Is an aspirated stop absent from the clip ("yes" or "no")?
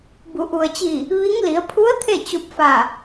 no